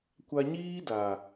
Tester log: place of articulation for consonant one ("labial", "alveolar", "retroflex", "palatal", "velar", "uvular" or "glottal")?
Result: velar